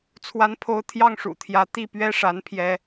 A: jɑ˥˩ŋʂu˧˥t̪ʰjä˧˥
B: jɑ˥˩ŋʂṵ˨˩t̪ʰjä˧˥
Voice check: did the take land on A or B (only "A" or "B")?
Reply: B